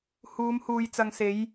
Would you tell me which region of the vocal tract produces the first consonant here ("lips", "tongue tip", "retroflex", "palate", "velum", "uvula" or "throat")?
throat